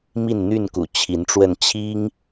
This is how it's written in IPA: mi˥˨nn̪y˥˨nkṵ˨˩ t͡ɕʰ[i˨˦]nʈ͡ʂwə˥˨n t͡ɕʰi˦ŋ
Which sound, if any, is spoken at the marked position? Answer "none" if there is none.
i˨˦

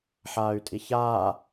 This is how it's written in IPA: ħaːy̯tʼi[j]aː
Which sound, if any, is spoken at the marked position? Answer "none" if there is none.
ç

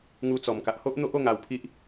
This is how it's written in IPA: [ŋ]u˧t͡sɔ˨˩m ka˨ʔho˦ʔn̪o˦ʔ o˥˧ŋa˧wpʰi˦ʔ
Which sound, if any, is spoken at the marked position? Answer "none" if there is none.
ŋ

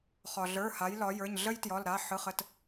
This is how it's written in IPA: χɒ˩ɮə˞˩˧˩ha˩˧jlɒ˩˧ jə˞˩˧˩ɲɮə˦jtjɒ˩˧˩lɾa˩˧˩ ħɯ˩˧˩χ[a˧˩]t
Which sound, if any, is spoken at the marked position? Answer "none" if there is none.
ə˧˩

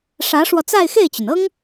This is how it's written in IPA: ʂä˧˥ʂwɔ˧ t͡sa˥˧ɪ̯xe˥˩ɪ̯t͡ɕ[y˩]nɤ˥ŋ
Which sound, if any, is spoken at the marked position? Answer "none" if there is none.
y˩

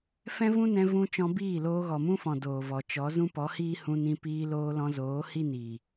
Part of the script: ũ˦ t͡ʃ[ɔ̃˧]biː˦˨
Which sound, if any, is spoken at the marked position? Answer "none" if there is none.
ɔ̃˧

